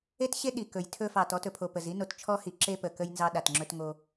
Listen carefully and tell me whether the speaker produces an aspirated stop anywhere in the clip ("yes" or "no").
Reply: yes